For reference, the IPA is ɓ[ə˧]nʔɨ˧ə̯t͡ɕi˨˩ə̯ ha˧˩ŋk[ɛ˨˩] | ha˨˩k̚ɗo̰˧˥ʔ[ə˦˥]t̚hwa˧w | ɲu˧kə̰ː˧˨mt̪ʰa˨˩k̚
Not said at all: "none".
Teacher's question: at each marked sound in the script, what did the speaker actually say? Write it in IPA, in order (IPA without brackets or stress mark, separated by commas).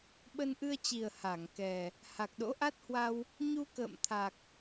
ə˧, ɛ˨˩, a˦˥